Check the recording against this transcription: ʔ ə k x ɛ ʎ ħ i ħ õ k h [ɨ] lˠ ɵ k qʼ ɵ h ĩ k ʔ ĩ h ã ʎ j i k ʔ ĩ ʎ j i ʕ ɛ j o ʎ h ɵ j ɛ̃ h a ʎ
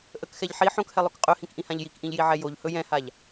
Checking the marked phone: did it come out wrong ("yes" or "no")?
yes